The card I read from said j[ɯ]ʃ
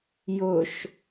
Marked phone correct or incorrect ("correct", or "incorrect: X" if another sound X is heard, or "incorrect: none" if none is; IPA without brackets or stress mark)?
incorrect: ʊ